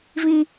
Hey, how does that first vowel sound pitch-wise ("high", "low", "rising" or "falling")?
high